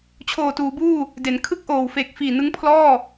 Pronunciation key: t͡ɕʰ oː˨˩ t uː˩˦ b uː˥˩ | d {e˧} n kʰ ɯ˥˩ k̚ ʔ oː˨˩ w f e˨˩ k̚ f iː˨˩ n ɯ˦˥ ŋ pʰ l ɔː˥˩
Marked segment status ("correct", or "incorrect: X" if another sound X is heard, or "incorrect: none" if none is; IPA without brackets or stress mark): incorrect: e˩˦